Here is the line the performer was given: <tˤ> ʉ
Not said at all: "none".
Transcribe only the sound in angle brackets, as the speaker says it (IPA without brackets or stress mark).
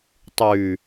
tˤ